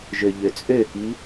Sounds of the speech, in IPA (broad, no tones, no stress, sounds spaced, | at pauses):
ʒ ø ʎ ø t͡sʼ ø k i